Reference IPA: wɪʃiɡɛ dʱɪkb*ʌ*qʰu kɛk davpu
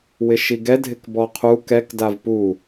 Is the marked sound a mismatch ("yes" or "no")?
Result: yes